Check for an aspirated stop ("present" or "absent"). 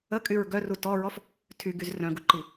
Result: present